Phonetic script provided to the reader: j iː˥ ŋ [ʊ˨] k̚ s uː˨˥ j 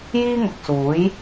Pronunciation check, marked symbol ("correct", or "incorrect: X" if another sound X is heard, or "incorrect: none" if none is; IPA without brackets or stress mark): correct